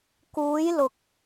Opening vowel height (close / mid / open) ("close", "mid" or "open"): close